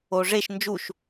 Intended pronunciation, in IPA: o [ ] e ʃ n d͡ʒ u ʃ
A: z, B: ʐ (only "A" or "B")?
B